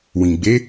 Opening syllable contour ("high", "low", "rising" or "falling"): low